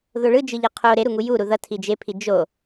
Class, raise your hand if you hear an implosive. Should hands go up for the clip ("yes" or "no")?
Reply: no